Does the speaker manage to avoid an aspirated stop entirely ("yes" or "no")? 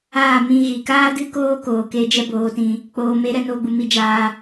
yes